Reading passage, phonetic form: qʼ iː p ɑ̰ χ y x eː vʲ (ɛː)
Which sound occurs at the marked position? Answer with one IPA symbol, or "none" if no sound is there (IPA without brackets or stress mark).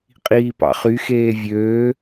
øː